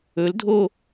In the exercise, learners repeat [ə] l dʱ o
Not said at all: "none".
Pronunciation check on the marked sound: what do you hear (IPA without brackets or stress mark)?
ɵ